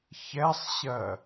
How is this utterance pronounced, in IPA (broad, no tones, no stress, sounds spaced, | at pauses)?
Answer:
ç ɛ sˤ ɕ ɜ